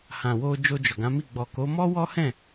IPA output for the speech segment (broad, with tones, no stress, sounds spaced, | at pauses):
h ã˨ w o˧ d͡ʒ o˧ d͡ʒ ɔ˨ ɡ ã˨˦ m i˦˨ ɡ͡b ɔ˨ k o˨˦ m ɔ˦ w ɔ˦ h ɛ̃˦˨